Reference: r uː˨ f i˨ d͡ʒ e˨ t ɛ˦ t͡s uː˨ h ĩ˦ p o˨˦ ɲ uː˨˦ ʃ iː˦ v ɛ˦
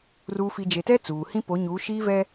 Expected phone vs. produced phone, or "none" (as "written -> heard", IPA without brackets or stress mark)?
none